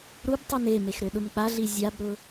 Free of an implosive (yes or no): no